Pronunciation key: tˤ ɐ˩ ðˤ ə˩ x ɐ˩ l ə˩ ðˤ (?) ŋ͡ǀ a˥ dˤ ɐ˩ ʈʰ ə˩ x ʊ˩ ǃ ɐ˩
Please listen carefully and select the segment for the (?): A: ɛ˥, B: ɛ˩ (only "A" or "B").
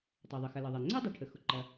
B